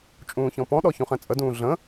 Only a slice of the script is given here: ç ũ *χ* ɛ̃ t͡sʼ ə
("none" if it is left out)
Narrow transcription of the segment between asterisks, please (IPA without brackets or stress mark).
χ